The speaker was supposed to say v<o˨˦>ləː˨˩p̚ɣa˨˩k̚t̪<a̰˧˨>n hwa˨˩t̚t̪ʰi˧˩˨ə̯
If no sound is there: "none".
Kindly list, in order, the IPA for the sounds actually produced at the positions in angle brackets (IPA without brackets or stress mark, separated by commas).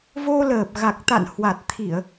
o˧, a̰˧˨